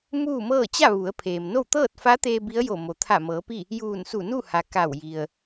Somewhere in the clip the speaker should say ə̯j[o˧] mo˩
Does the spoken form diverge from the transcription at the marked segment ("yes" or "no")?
yes